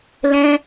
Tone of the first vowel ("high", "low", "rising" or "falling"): high